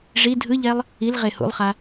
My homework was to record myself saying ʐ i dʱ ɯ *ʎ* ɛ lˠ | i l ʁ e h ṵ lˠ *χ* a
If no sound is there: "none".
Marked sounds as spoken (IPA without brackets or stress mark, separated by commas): ʎ, χ